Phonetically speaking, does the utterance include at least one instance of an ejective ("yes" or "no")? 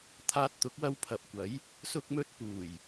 no